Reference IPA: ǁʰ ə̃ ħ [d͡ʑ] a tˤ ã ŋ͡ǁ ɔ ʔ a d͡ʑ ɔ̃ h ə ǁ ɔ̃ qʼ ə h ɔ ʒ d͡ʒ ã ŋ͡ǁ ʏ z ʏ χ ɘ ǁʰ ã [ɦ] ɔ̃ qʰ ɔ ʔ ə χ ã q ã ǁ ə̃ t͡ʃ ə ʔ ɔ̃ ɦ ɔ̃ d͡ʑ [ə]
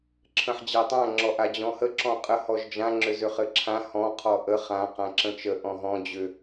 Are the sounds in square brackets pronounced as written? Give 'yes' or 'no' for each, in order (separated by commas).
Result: yes, no, no